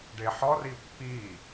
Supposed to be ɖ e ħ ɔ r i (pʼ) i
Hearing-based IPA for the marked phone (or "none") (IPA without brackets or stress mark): pː